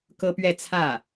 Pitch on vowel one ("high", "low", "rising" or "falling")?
high